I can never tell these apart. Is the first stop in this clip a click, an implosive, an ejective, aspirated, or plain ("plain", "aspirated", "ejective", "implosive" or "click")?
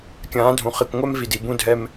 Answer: plain